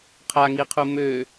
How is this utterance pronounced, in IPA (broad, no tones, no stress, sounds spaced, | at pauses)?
qʰ a ŋ i qʰ u m ø